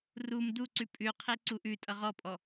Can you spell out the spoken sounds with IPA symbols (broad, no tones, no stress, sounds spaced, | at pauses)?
r u m d u ǀ ʉ pʼ ʉ qʰ e ǀ u ʔ ʉ tʼ ʌ ʁ ɔ pʼ ɔ